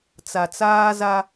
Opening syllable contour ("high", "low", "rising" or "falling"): low